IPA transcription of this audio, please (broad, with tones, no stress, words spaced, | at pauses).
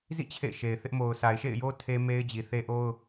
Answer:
zḭ˦˨ t͡ɕʰḛ˦˨ɪ̯ʃe˨ɪ̯θɪ˦ʔ mo˨ʊ̯sa˨ɪ̯ʃḛ˦˨ɪ̯jo˦ tʰe˦me˦ɪ̯d͡ʑi˨θe˦ ʔo˦ʊ̯